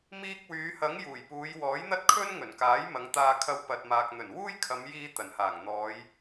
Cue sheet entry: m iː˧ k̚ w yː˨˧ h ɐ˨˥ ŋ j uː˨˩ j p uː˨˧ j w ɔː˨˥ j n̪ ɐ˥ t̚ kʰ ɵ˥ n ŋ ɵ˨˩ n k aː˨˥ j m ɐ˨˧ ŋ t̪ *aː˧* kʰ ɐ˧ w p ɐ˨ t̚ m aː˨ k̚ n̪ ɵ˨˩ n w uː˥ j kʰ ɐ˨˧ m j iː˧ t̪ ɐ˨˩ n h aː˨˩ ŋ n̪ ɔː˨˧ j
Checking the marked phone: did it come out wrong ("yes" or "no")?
no